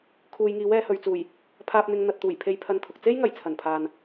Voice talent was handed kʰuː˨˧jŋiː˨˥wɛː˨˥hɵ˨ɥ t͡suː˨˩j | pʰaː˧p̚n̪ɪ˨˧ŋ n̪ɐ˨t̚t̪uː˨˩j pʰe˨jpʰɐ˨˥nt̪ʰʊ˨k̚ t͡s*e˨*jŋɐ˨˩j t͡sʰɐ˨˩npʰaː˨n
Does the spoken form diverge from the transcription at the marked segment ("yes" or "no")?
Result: yes